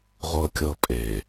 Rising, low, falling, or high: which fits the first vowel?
low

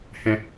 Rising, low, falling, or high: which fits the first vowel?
low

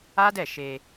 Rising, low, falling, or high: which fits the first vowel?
high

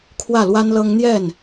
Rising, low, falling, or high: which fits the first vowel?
falling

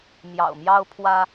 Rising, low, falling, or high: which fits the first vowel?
low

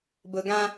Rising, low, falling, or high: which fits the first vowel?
low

